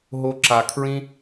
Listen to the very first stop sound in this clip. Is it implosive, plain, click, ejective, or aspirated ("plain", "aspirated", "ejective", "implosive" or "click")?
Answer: click